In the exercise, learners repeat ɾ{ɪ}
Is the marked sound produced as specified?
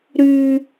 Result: no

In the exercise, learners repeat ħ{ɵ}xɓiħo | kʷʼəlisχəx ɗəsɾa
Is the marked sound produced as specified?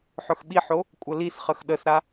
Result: yes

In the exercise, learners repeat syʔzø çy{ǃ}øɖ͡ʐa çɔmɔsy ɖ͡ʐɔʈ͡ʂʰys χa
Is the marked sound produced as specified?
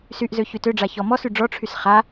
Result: no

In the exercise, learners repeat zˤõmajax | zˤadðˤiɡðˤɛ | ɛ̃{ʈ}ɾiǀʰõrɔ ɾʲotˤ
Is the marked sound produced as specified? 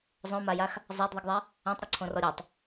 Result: no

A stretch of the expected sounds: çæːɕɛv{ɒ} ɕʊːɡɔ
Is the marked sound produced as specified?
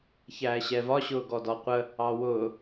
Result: yes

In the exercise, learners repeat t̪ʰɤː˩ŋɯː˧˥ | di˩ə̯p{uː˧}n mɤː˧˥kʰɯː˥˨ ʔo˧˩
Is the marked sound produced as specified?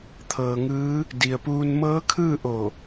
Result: yes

